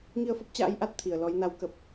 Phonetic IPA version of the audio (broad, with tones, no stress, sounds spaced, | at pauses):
ŋ i˧ ə̯ f ə˦˥ p̚ t͡ɕ a̰ː˧˥ j ʔ a˦˥ t̚ t̪ʰ i˨˩ ə̯ l ɔ˨˦ j n a˨˦ w k ə˨˩ p̚